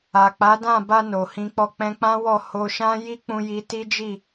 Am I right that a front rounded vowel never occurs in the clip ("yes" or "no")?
yes